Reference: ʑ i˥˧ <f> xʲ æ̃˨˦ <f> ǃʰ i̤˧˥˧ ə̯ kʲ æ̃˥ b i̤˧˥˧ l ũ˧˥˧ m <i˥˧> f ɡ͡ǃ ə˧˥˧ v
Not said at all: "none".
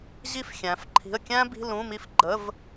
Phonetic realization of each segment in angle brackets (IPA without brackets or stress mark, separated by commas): f, f, i˥˧